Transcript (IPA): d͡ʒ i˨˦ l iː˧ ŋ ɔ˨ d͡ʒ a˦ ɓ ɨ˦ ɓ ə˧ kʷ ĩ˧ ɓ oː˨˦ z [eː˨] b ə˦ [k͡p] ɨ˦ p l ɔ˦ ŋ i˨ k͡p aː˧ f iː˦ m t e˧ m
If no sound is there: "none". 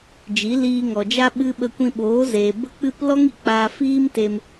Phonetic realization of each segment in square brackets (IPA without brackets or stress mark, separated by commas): eː˨, k͡p